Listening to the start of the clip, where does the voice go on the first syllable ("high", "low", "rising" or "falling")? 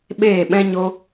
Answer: falling